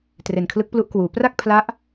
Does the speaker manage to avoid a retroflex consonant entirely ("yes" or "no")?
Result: yes